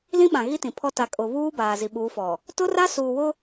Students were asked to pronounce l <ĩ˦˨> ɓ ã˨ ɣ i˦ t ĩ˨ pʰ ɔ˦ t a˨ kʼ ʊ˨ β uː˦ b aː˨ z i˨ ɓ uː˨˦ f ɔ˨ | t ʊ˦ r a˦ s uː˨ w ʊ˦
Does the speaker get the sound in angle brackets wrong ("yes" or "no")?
yes